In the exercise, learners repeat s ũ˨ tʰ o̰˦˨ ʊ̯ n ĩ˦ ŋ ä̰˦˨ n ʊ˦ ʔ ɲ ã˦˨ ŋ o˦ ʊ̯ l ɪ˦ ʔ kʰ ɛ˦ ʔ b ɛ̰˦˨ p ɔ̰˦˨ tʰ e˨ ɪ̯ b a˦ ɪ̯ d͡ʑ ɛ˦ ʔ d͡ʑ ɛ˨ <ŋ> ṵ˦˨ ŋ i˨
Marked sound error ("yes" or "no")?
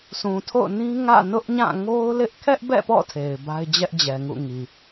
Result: no